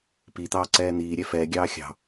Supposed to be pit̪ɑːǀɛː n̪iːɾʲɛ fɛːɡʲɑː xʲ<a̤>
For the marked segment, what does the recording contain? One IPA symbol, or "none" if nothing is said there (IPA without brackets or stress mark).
ɑ̤